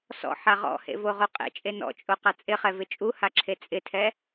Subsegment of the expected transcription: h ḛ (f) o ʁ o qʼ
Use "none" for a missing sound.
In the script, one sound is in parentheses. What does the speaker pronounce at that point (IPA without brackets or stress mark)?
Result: v